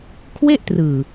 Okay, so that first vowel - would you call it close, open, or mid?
mid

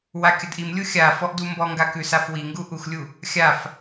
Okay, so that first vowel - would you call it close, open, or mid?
open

